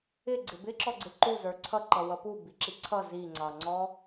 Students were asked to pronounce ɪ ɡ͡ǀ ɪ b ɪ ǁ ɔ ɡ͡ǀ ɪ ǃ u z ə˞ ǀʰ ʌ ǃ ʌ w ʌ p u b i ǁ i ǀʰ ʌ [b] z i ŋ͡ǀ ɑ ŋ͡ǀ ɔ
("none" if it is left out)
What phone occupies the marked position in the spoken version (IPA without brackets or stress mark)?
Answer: none